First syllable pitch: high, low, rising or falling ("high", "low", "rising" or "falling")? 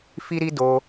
high